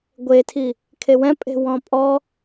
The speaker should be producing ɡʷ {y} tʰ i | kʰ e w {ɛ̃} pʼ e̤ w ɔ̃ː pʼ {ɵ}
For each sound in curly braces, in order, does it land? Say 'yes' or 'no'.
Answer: no, yes, no

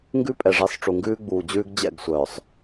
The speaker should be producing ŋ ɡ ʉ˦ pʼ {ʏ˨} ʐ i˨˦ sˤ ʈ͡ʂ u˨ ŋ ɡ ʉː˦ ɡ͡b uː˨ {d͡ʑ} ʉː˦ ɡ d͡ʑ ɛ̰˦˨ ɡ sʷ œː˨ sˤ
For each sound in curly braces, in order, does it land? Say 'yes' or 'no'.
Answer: no, yes

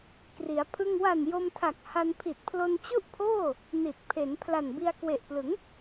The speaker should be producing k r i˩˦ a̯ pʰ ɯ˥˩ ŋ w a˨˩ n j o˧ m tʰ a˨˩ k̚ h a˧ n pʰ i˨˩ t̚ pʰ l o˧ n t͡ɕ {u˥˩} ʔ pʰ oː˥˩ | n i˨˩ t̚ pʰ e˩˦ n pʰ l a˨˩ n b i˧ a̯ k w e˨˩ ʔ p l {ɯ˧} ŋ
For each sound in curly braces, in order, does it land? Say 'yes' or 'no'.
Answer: yes, no

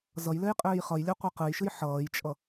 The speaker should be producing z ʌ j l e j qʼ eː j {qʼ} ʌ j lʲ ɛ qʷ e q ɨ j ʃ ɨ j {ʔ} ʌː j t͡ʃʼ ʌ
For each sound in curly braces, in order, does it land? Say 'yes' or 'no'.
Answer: no, no

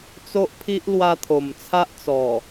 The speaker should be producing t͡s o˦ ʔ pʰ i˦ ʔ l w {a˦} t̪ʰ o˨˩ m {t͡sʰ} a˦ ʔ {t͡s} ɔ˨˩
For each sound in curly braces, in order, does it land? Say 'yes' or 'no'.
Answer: no, yes, yes

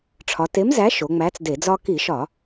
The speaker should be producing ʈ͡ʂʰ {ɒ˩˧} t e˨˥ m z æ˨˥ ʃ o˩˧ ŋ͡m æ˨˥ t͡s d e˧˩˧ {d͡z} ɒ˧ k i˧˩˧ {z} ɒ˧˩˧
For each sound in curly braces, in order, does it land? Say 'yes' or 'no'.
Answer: yes, yes, no

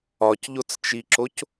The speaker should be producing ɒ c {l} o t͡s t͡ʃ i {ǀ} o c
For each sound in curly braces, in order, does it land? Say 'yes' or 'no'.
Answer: no, no

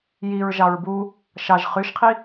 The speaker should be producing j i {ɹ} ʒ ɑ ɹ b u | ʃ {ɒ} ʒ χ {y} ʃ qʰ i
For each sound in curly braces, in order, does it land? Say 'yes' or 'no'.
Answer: yes, no, yes

